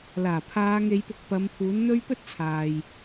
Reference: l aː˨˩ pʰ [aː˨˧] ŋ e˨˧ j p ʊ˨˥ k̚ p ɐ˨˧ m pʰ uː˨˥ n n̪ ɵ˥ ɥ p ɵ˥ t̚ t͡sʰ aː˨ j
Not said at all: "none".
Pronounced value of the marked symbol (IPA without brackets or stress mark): aː˨˧